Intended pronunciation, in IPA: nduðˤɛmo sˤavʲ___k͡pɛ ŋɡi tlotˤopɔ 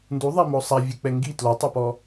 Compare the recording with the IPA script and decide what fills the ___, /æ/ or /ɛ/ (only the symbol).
ɛ